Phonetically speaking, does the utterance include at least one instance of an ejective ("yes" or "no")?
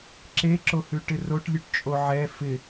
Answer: yes